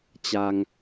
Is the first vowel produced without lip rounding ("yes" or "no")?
yes